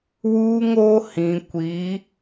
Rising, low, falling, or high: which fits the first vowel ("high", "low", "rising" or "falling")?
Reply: high